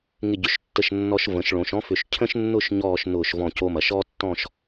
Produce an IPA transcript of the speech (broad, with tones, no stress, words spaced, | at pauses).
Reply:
ŋɪ˧˩ɟʏ˩˧ʃtːə˧˩ʃnːɔ˧ʃ və̃˩˧ʃɭõ˩˧ʃɔ̃˥fʏ˧˩ʃ cʰə̃˥ʃnːʊ˥˧ʃ ɲɔː˥˧ʃ nʊː˧˩ʃvɔ̃˧˩co˧mɐ˩˧ʃ ɔ˥tːɔ̃˥˧ʃ